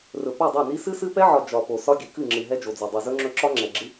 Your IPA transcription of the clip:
r ɵ˨ p o˦˨ dˤ ɛ˦˨ n i˦ s ɨ˦ s ɨ˦ p ɛ˦ ʕ ɒ˨ d͡ʒ ɒ˨ p o˨ s ɒ˦ ɡʲ ɨ˨ k ɨ˦˨ ŋ͡ǁ ɨ˨ ɦ ɛ˦ d͡ʒ o˨ d͡z o˨ dˤ ɨ˨ z ɵ˦ ŋ͡ǁ ɵ˦ ǁ ɒ˦ ŋ͡ǁ ɛ˨ ɡ͡ǁ ɨ˦

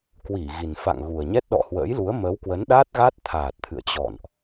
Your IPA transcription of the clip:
k w i˧˩ ɣ i˨˩ n f a̰˧˨ ŋ ɣ u˨˩ ə̯ ɲ ɛ˦˥ t̚ ɗ ɔ̰˧˨ h w ə̰ː˧˥ j l u˨˦ ə̯ m ə˨˦ w k w ə˨˦ n ɗ aː˦˥ t̚ ɣ a˦˥ t̚ t̪ʰ aː˨˩ t̚ t̪ʰ ɨ̰˧˨ ə̯ t͡ɕ ɔ̰˧˨ n ʔ

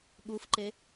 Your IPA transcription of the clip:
ɠ u f ǃ e

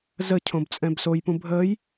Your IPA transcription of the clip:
z ə cʰ õ b t͡sʼ ɛ̃ b s o j p ũ bʱ əː j

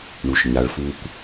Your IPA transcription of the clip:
ɳ u˨ ʃ ɲ a˨ ɭ f u˦ kʷ

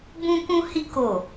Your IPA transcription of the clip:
b ũ˦ k ũ˦ h i˦ k o˦˨

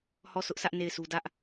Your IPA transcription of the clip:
h ɔ˦˨ sʰ ʊ˦ ʔ sʰ ä˦ ʔ n e˦˨ ɪ̯ sʰ u˦ d ä˦ ʔ

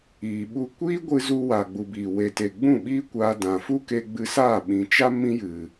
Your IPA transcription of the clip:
iː˨ ɓ u˧ kʷ iː˦ ɡʷ ɨ˧ z u˧ w a˨ ɡ͡b u˨ b iː˨ w e˨ t e˨ ɡ͡b ũ˦˨ ɓ iː˦ kʷ aː˧ d ã˨ f u˦ k e˧ ɡ͡b ɨ˧ s aː˦˨ ɓ ĩ˨ t͡ʃ a˦ m ĩ˦ j ɨ˨

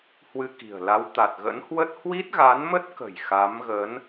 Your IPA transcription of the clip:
h w ɨ˧ k i̤˨˩ ə̯ l a˨˦ w t̪ a˨˩ t̚ ɣ ə̰˧˥ n h w ə˦˥ t̚ h w i˦˥ t̚ ɣ a˨˦ n m ə˦˥ t̚ k ə̤˨˩ j x a˨˦ m ɣ ə˨˦ n

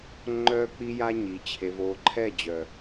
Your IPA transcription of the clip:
ŋ͡ǃ œː˦ k͡p i˦ j a˦ ɲ i˨ t͡ɕʰ e˨ v oː˨ ǃʰ ɛ˦˨ d͡ʑ œ˨

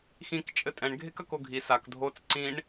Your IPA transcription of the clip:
x ĩ k t͡ʃʼ ɘ tʼ ɛ̃ ɳ ɡʱ e k ɐ k o ɡʱ i s a k dʱ o t͡s ǀ ĩ ɳ

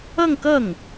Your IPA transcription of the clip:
ɤ˥˧ ŋ k ɤ˥˩ ŋ

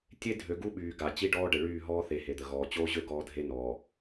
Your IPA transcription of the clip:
tʲ e˦ dʱ ø˨ ɡ u˦ ɓ yː˨ ɡ a˨ t͡ɕ i˦ ɖ ɔː˦ ɖ ə˨ ɭ yː˦˨ ɦ ɔː˦ θ e˨ h e˨ d̪ ə˨ ɣ ɔː˨ t͡ɕ oː˦ ʑ ø˦ ɡ ɔː˦ dʱ e˦ n ɔː˨

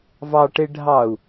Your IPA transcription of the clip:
v ɑ ʈ e ɖʱ ɑ u̯

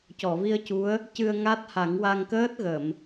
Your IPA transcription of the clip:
c ɔ˨˩˨ v i˧ ə̯ c u˧˥ ə̯ | c ɨ˧ ə̯ ŋ a˦˥ t̚ h a˨˩˦ ŋ w a˧ ŋ k əː˦˥ t̚ ɣ ə˨˩˨ m

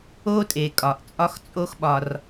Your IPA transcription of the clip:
o˦ tʼ e˩ kʼ ɒ˩ ʔ t͡sʼ ɒ˦ x t͡sʼ o˦ x ɓ ɒ˩ r

